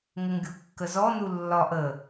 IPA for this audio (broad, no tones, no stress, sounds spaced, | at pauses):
ŋ ə ŋ ɡʲ u kː ə z ɔ n u lː ɒ ʔ ə